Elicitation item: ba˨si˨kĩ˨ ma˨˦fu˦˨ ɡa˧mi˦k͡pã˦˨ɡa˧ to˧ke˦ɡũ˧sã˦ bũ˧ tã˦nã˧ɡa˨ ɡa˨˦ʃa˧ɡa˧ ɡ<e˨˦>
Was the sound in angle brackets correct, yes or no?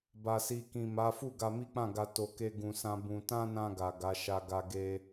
no